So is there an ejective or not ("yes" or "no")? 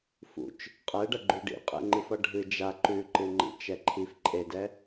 yes